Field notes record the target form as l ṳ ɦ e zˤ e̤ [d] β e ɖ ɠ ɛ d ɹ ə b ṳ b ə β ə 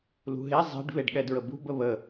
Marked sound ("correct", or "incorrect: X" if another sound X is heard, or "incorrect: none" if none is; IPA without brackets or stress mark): incorrect: ɖ